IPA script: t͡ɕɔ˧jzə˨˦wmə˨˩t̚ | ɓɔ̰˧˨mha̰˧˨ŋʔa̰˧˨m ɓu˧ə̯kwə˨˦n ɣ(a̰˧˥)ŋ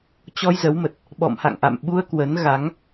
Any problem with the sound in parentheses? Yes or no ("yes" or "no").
yes